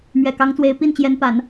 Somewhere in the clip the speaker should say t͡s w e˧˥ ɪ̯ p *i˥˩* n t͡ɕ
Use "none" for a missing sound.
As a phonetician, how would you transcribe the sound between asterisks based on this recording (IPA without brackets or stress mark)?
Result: i˥˩